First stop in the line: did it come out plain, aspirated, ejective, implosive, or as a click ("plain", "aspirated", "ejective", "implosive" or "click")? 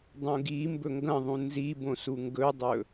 plain